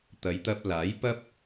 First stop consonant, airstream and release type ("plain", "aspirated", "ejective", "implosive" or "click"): plain